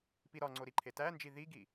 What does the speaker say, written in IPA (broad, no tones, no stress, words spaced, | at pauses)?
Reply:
piɾɒŋ͡ǀo ɾiǃʰetænd͡ʒi ðiɡi